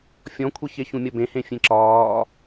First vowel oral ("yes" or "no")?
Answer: no